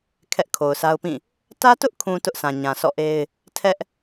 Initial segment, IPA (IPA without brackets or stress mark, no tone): kʰ